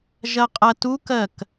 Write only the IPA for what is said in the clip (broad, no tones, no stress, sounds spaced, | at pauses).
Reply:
ʒ ɐ qʼ ɐ t u k ɜ k